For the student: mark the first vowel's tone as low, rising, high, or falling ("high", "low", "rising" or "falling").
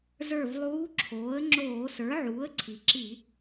falling